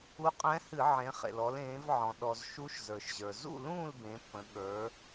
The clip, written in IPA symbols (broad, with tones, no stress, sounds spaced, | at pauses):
u˧˥ qʼ ɛ̃˧˥ h ɨ˧˩˧ ʕ ẽ˩˧ χ ḛ˩ l ɔ˩˧ l ẽː˩˧ v ʕ ɔ̃˩ ɗ ɔ˩ z ʃ u˧˥ ʃ z ə˞˩ ʃ ʑ ə˞˩ z ṵ˥˨ l ũː˥˨ l b ẽ˩˧ pː ə̃˩˧ ɠ ə˞˩˧